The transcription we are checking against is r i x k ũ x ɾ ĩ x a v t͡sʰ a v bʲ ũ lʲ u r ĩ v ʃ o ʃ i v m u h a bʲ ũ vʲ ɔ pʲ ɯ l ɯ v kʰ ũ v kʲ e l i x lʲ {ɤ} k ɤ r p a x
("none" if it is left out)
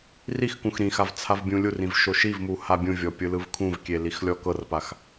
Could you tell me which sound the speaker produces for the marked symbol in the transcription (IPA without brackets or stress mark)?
ɔ